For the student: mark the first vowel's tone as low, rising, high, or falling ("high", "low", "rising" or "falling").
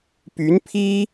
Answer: rising